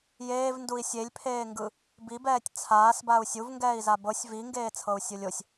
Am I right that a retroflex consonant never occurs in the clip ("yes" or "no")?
yes